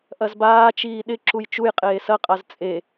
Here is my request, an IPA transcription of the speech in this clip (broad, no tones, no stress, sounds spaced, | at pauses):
ʔ ɐ z b aː t͡ʃ iː ɗ ɪ ǁ u j t͡ʃ u j qʼ eː s ɐ qʼ a z t͡sʼ e